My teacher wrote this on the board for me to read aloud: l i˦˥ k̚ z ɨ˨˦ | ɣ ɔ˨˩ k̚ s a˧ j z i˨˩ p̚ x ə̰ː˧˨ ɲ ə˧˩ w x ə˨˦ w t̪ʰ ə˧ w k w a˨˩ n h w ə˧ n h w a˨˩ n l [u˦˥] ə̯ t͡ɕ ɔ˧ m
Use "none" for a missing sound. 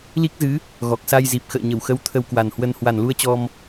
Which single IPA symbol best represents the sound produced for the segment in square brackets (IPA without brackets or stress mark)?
u˧